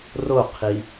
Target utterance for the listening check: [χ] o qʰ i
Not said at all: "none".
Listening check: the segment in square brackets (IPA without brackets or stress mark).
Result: r